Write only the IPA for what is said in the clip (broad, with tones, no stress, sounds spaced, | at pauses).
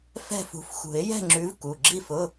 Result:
f ɛ̤˥˨ f ṳ˨˦ f x ṳ˨˩˦ ɪ̯ j ɛ̤˥˨ ŋ͡ǁ ʉ˨˦ v k u˩˧˩ ɡ͡ǁ i˥˨ f ʊ˧˥˧